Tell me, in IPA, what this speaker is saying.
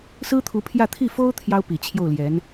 s ɹ̩˥ t̪ʰ u˧˥ pʰ j ä˥˧ t̪ʰ i˥˩ f o˥ ʊ̯ t̪ʰ j ɑ˥ ʊ̯ p i˨˩ t͡ɕʰ j o˥˩ ʊ̯ l j ɛ˧˥ n

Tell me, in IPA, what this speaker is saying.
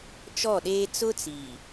t͡ʃ ɔ˦˨ ɗ eː˦ t͡s ʊ˦ t͡s i˨

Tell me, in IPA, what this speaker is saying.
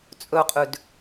t͡sʼ ɵ qʼ ʉ d

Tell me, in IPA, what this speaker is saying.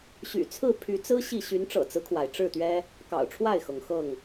ɕ y̰˨˩ t͡sʰ ɹ̩˥˨ pʰ y˨˦ t͡s ɹ̩˦ ɕ i˥˨ ɕ y˨˦ n ʈ͡ʂ ɤ̰˨˩ t͡s ɹ̩˦ kʰ w a˩ ɪ̯ ʈ͡ʂ ɻ̩˥˨ t̪ ɥ ɛ˦ | k ɑ̰˨˩ ʊ̯ ʈ͡ʂʰ w a˥˨ ɪ̯ x ɤ˩ ŋ x ɤ˥˨ ŋ

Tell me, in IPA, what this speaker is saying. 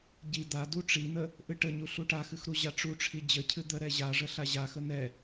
ɟ i d̪ a d u ʈ͡ʂ i n̪ ə | ʔ ɨ ʈ ə ɲ u ɬ u ʈ a x ɨ x ɾ u ʑ a ʈ͡ʂ u ʈ͡ʂʰ i d͡ʑ ə cʰ ɨ d̪ ə ɾ ɛ ʑ a ʐ ə ɬ a ʑ a x ə n̪ ɛ

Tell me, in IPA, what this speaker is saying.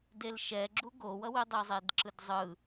d e l ʃ ɛ ɡ͡ǁ u ɡ o w ʌ w ɯ dˤ ɯ zˤ e d ǁ ɯ d zˤ ɯ

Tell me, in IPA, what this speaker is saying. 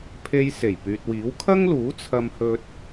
pʰ e˥ j s e˨˩ j p yː˨ t̚ w iː˨˥ w kʰ ɐ˥ ŋ l uː˨˥ t͡sʰ ɐ˥ m h ɵ˥ t̚

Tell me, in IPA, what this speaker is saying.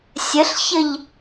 sʲ ə ɬ ç ə ʎ

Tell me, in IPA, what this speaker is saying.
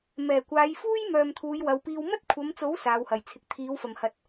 m ɛː˨˩ kʷ aː˨˧ j f uː˥ j m œː˨ m t̪ʰ uː˨˧ j w ɐ˨˧ w p iː˧ w m ɐ˥ t̚ kʷʰ ɐ˨˧ m t͡s o˨˥ w s aː˨˧ w h ɐ˨ j t͡sʰ ɪ˧ k̚ t̪ʰ iː˨˥ w f ɐ˨˩ m h ɐ˨ t̚

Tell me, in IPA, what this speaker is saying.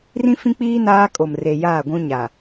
r ĩ˦ f ĩ˦ k͡p iː˦ n aː˦ kʼ o˨ m r e˨ j aː˦˨ ɡʷ ũ˦ ɲ a˨

